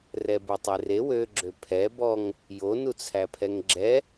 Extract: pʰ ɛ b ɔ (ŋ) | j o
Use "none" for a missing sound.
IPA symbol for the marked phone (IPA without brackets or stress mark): ŋ